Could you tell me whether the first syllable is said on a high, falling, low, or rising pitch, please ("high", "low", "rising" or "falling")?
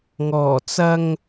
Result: low